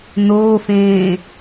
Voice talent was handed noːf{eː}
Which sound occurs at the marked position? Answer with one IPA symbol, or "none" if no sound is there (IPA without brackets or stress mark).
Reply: ẽː